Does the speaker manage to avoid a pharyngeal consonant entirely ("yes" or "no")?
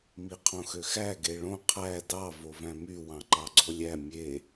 yes